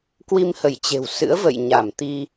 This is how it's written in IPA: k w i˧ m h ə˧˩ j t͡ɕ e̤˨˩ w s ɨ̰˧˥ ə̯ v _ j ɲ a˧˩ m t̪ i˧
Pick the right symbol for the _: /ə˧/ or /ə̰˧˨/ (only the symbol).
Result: ə̰˧˨